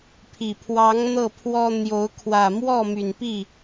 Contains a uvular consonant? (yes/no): no